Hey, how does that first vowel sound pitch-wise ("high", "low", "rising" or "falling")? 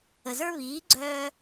low